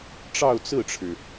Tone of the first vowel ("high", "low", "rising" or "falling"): falling